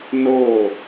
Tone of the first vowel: falling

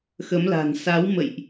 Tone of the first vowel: rising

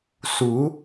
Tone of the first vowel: rising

